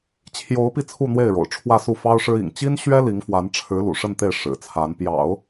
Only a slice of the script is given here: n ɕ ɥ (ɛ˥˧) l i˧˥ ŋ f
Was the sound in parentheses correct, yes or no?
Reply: no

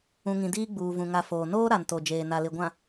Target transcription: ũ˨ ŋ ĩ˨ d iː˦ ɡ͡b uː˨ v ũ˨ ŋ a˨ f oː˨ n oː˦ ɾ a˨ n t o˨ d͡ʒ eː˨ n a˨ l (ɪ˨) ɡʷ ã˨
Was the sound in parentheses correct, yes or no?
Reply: yes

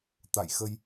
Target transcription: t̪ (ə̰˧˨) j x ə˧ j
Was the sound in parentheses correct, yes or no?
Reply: no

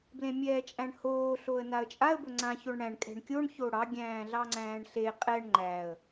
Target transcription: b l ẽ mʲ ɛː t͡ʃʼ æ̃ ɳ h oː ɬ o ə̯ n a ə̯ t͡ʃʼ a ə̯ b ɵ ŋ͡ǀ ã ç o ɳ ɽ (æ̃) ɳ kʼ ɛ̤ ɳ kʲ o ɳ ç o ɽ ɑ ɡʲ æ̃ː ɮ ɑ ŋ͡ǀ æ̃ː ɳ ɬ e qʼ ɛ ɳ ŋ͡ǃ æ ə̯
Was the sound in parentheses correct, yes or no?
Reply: yes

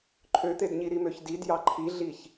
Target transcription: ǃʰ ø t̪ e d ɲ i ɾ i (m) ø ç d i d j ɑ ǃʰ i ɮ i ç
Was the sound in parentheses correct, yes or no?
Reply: yes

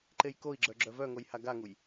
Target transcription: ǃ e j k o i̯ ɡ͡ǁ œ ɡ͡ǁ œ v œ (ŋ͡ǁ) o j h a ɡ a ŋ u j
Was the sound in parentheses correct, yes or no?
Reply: no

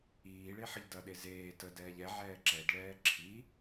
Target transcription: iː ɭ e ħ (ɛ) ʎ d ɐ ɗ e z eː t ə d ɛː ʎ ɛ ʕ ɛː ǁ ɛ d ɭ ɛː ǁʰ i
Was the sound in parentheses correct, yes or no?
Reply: no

